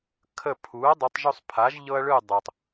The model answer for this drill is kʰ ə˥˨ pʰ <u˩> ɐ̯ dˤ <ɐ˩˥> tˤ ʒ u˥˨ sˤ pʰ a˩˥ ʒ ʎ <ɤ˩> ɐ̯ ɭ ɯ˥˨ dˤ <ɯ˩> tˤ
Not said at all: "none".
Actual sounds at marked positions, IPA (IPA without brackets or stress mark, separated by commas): u˩˥, ɐ˩˥, ɤ˦, ɤ˩